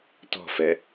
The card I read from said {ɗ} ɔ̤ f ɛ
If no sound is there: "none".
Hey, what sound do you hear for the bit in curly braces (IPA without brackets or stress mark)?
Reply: t